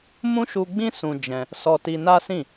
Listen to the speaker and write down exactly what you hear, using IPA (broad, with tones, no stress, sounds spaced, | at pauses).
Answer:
m ũ˦ ʃ u˧ ɡ͡b ĩ˦ s ũ˧ d͡ʒ ɛ̃˧ | s ɔ˧ t i˧ n a˦ s ĩ˦˨